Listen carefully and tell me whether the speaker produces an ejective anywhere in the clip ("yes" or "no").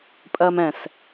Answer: yes